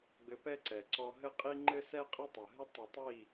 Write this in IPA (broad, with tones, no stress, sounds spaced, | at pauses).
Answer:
ɡ͡b ɘ˧ p ɛ˦ ǀ ɛ˨ ǀ ɔ˧ ɦ ɘ˦ qʼ i˦ ŋ͡ǃ ɘ˦ s ɛ˦ qʼ ɐ˦ tˤ ɐ˨ ɦ ɘ˦ tˤ ɐ˧ tˤ i˦˨